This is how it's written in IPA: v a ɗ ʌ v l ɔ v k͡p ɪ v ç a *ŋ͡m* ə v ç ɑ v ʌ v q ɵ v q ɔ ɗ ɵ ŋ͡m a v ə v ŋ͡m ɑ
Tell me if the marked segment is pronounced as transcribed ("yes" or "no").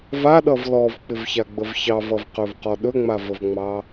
no